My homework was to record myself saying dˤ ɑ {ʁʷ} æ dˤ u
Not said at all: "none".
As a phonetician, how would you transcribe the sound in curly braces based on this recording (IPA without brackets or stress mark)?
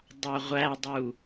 ʁʷ